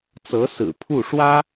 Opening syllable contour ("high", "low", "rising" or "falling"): rising